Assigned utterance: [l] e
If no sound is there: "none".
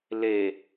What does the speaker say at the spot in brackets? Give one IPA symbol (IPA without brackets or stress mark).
l